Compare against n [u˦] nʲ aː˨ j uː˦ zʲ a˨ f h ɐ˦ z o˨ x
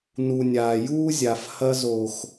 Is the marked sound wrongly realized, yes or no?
yes